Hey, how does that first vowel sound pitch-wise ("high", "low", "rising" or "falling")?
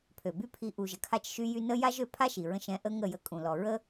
low